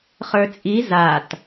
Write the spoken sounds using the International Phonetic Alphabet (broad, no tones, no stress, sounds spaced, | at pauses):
χ ə˞ t͡sʼ i z a t